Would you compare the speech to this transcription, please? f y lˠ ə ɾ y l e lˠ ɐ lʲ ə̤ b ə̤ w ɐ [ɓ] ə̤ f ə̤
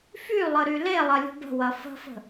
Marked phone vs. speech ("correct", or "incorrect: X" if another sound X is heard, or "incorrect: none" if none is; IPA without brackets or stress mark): incorrect: f